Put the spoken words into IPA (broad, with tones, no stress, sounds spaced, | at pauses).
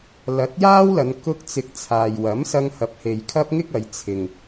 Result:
l ɐ˨˥ t̚ j aː˥ w l ɐ˨˧ n k ʊ˧ k̚ t͡s ɪ˨ k̚ t͡sʰ aː˨ j w ɐ˨˥ m s ɐ˧ ŋ h ɐ˨ p̚ h e˨ j kʰ ɐ˥ p̚ ŋ ɪ˥ k̚ ɐ˨˧ j t͡sʰ ɪ˨ ŋ